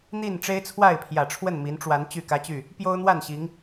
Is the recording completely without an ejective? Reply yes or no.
yes